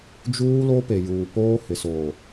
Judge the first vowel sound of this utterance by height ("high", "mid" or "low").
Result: high